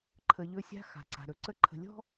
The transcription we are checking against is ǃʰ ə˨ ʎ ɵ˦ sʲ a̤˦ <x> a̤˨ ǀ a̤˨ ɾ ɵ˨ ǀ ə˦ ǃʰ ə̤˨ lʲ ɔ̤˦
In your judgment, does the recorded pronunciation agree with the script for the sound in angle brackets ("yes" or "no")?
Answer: yes